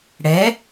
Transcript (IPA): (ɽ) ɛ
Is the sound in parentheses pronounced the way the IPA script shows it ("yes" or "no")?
yes